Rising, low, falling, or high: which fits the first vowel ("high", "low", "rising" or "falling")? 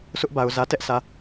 high